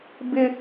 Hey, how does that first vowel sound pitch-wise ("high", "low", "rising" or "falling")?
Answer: high